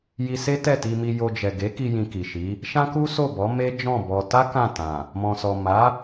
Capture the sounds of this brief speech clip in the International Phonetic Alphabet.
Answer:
j i˧ s e˦ t ɛ˦˨ t i˧ m i˧ j o˧ d͡ʒ ɛ˨ ɡ e˨˦ k i˧ j ĩ˧ k i˨ ʃ i˨˦ | ʃ ã˦ k u˦ s o˦˨ b ɔ˨˦ m e˦ d͡ʒ ɔ̃˦˨ b ɔ˧ t a˦ k ã˦˨ t ã˨ | m ɔ̃˨ s ɔ˨ m a˨˦

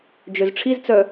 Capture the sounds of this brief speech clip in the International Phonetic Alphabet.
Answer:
d͡ʒ ø z ʈ͡ʂʰ i z t͡s œ

